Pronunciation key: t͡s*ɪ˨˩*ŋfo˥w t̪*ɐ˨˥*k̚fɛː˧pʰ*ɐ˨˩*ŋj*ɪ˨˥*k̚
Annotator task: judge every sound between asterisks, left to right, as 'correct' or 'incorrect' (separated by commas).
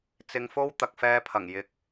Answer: incorrect, incorrect, correct, correct